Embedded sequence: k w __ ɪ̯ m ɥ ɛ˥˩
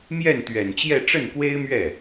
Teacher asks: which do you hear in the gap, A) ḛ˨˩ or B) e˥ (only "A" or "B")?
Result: B